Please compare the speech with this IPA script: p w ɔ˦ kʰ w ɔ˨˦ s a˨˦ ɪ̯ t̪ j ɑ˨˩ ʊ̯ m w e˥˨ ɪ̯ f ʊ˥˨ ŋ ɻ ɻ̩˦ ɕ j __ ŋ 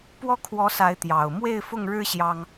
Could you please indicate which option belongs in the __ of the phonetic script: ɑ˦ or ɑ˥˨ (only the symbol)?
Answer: ɑ˦